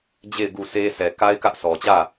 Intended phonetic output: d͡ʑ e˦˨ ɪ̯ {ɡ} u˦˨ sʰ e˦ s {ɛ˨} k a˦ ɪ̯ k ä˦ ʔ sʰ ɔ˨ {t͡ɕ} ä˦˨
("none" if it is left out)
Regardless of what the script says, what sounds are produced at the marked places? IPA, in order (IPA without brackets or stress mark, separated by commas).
ɡ, ɛ˨, t͡ɕ